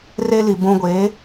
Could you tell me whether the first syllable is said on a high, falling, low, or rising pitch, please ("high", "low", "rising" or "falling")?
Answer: high